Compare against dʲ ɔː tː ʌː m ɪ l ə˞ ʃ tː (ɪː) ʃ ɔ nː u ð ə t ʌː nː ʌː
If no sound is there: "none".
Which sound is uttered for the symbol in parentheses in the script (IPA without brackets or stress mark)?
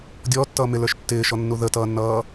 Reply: ɪː